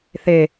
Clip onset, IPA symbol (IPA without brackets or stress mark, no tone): θ